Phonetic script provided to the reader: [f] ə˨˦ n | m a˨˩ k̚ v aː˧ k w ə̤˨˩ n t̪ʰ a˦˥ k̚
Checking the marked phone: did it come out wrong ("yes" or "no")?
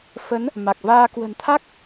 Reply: no